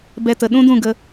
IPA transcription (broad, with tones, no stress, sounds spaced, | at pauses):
b ɛ˧ t ə˨ ɗ ũ˦ d ũ˦˨ ɡ ə˧